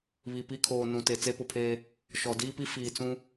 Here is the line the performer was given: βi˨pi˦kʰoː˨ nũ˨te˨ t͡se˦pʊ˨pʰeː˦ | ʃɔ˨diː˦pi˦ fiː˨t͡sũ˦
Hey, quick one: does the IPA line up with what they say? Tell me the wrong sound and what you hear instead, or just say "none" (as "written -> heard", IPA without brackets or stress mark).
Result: none